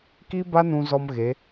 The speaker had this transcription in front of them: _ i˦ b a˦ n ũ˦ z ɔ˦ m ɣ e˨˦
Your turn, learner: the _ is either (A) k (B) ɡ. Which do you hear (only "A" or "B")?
A